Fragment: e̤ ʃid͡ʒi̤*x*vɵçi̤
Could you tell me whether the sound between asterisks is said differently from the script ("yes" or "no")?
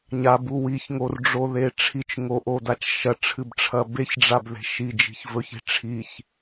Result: yes